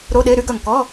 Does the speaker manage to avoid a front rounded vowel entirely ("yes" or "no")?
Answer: no